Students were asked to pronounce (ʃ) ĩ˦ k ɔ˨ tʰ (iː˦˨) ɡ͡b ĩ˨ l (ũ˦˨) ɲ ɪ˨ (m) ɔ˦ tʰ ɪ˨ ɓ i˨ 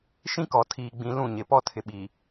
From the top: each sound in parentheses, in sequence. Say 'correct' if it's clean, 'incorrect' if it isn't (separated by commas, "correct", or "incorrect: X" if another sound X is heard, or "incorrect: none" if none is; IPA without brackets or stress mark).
correct, incorrect: iː˨, correct, incorrect: p